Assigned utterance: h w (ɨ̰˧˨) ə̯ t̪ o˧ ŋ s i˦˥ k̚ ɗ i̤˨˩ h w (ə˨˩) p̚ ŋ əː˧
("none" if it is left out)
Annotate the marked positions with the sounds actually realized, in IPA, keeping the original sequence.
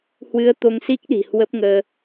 ɨ˧, ə˦˥

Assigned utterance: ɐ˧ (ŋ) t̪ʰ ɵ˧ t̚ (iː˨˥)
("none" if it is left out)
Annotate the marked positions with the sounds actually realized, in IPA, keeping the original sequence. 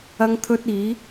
ŋ, iː˨˧

